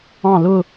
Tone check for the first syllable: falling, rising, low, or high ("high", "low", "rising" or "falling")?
falling